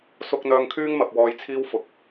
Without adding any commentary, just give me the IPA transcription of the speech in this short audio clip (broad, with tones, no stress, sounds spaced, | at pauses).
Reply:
s ʊ˥ k̚ n̪ œː˧ ŋ kʰ yː˥ ŋ m ɐ˨ p̚ w ɔː˧ j t͡sʰ iː˥ w f ʊ˨˥ k̚